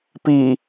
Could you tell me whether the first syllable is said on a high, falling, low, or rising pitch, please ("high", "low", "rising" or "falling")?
low